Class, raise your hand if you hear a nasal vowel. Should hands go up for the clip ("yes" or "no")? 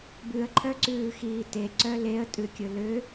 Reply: no